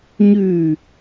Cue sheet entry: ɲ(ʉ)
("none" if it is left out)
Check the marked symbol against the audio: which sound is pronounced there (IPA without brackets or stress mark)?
ʉ